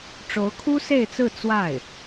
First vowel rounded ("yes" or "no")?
yes